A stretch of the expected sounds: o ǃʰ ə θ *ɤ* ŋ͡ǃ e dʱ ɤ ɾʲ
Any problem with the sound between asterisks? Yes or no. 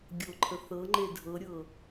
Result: no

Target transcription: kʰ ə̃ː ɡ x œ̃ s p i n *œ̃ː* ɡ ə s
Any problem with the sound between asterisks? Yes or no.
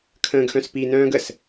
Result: no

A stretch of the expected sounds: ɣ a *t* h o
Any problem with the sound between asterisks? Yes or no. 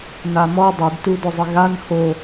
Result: yes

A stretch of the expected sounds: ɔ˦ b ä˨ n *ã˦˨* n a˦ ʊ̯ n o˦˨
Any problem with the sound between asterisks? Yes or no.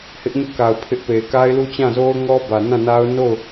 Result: no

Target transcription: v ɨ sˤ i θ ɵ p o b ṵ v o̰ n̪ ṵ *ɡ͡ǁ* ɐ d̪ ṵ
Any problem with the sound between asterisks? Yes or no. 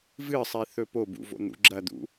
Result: no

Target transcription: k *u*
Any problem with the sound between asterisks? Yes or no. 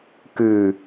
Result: yes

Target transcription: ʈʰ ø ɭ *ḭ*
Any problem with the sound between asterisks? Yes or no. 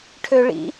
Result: no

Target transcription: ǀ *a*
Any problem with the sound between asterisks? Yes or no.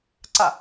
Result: no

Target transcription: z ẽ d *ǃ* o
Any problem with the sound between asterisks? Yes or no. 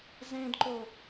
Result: no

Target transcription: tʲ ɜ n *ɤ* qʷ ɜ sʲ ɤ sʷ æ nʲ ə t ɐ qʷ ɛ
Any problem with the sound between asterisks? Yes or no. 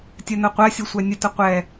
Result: no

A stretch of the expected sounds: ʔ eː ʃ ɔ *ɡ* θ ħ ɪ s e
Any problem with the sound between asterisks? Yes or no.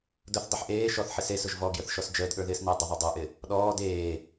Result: yes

